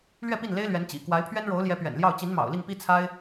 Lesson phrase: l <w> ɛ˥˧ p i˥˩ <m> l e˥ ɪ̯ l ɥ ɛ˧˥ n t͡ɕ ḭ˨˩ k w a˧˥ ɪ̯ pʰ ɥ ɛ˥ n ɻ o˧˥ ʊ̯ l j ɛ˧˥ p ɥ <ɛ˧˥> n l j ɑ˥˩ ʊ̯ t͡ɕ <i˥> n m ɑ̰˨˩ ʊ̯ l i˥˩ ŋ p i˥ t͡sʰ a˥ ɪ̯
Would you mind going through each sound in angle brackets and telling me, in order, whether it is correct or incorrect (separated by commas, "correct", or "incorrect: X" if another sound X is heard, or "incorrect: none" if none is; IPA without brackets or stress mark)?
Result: incorrect: ɥ, incorrect: n, incorrect: ɛ̰˨˩, incorrect: i˧˥